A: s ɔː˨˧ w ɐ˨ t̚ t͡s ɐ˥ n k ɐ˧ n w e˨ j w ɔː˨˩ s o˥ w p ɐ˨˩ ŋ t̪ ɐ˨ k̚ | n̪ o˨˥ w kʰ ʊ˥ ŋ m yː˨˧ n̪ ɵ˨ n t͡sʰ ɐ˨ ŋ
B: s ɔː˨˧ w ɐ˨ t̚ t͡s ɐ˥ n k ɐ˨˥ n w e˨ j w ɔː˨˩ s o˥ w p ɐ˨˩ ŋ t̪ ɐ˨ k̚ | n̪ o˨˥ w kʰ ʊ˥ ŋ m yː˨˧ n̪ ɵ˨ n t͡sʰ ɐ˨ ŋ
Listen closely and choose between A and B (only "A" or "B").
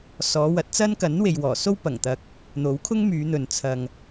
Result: B